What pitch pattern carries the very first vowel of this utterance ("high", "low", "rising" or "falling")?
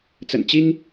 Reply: low